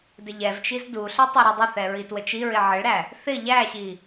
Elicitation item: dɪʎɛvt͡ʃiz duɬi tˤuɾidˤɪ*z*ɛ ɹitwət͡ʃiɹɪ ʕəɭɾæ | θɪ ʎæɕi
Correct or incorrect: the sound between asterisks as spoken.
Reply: incorrect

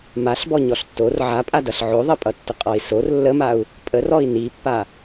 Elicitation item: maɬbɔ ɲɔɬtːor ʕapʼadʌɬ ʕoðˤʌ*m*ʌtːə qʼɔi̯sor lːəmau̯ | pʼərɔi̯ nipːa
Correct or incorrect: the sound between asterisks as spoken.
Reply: incorrect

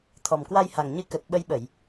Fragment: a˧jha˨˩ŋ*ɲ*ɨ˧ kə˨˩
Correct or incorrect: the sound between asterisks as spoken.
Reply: correct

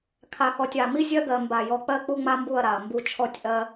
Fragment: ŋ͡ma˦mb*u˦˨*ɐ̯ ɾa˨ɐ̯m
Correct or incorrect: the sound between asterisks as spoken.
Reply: correct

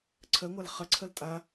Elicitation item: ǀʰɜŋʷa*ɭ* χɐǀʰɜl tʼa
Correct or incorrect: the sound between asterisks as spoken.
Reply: incorrect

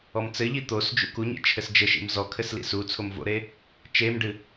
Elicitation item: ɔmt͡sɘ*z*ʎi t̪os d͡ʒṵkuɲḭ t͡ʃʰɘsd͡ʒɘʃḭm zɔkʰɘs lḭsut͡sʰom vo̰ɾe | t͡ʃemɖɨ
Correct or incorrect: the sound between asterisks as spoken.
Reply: incorrect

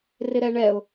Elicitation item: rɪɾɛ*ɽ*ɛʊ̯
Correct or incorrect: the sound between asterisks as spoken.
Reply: incorrect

